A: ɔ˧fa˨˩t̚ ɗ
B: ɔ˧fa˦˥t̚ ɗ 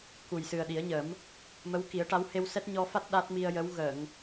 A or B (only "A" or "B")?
B